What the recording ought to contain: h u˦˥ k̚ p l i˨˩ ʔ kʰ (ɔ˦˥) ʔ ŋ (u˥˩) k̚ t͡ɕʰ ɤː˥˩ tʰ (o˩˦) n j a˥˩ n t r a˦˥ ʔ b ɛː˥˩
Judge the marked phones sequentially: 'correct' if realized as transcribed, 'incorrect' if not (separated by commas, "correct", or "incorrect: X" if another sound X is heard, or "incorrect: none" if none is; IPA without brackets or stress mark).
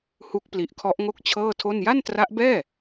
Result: correct, incorrect: o˥˩, incorrect: o˥˩